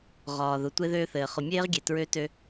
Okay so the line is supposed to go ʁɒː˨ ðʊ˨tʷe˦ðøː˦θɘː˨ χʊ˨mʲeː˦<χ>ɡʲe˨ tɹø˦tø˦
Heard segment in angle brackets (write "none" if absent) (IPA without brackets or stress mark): ʁ